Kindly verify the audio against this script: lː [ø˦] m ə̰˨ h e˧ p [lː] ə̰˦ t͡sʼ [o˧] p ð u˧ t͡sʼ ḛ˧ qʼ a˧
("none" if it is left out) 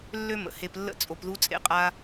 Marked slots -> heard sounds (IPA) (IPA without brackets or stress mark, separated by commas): ø˦, lː, o˧